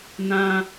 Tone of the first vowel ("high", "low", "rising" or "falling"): high